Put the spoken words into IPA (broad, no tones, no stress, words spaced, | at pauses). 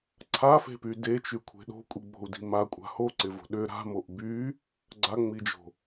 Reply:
ǀʰafe̤py det͡ʃykʷʰe̤ ɗo̤kʷʼiɡ͡bo̤u̯di̤ makʷʼa̤ hoǀɪvo̤ ɗʏ ɾa̤moʔ by | ɡ͡ǀaŋ͡mid͡ʒo̤